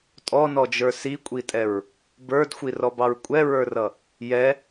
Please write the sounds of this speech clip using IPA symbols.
tʼ ɔ n ɔ d͡ʒ ə˞ s i kʷʼ i tʼ ɛ ɹ | b ə˞ d xʷ i r ɔ b ɑ ɹ kʷʼ ɛ ɹ ə˞ r ʌ | j ɛ

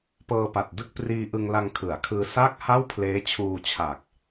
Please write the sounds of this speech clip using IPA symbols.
p ɤː˧ p a˨˩ t̚ d ɯ˥˩ k̚ p r iː˧ ʔ ɯ˧ ŋ l a˧ ŋ kʰ ɯ˩˦ a̯ kʰ ɯː˧ s a˥˩ k̚ h a˥˩ w pʰ l eː˦˥ t͡ɕʰ uː˧ t͡ɕʰ a˨˩ k̚

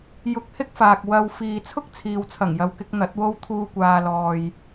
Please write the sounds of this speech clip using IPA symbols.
j ʊ˧ k̚ h ɪ˥ k̚ f aː˨ k̚ w ɐ˧ w f iː˨ t͡sʰ ʊ˥ k̚ t͡sʰ iː˨ w t͡sʰ ɐ˨˩ ŋ j ɐ˨ w k ɪ˧ k̚ n̪ ɐ˨˥ t̚ w o˥ w t̪ʰ uː˧ kʷ aː˨ l ɔː˨ j

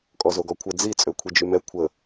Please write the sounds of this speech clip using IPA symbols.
kʼ ɔ z o ɡ ɔ kʷʰ ə d͡z i t͡sʼ ø kʷʰ i d͡ʒ y m ɛ kʷʰ ə

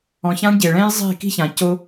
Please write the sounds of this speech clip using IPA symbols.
ɔ̃˨ ç ã˦ ɳ ɟ e˨ ɭ ɛ̃˦ j zˤ e̤˦˨ k i̤˦ ç ã˨ c o˦

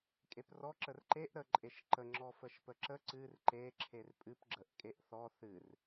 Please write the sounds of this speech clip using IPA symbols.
kʼ e p r ɔ ǁ ə r ǃ e ʔ ɾ ə ǃʼ e ʃ ǃ ə ŋ͡ǁ ɔ f ə ʃ p ə ǁ ə ǀ ɨ r ǃ e ǁʰ e r pʼ ɨ p ɡ͡ǁ ə ʔ kʼ e ʔ θ ɔ θ ɨ r

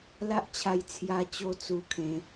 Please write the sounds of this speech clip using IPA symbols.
l a˦ ʔ t͡ɕʰ a˧ j t͡sʰ j a˧ t͡ɕ o˧ t͡s u˧ kʰ ẽ˨˦

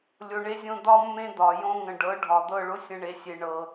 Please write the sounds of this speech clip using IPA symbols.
lʲ o˨ ɳ e˧ zʲ õ˧ d̪ ɒ˦ mː ẽ˦ d̪ ɒ˨ j õ˧ ŋ ə̃˨ ɖ ɤ˨˦ ɖʱ ɒ˨ d̪ ɤ˦˨ ɭ ʊ˦ sʲ ə̃˦ ɳ e˧ sʲ e˧ ɳ ɤ˧

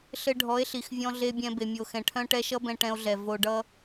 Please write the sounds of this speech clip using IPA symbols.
ɬ ɘ˧ ɖʱ ɔ˨˦ e̯ ɬ i˨ x vʲ ɔ̃˧ ɮ e˧ bʲ ɛ̃˧ b e˨ mʲ o˨ x ɛ̃˨ ʈʰ œ̃˧ ʈ ɛ˧ ʃ ʌ˦ b ɛ̃˧ ʈ ɛ̃˧ o̯ ɮ ɛ˨ v o˧ ɖ ʌ˦

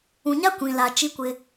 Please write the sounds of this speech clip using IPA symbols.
ũ˨ ɲ a˦ kʷ ĩ˨ l a˨ t͡ʃ i˦ kʷ ɪ˦

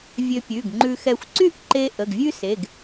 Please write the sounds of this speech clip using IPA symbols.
vʲ ø˧ pʲ ʉ˩˧˩ ɡ ŋ͡ǃ ʉ˧ x ɛ˧ xʷ ǀ y˥ ʔ ǃ e˧ ʔ ə˩˧˩ ɡ vʲ ʉ˥ s e˩˧˩ ɡ

